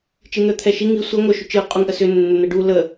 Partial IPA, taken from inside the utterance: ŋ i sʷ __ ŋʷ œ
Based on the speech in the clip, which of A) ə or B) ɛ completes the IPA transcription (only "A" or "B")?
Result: B